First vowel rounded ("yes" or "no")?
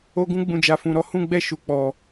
yes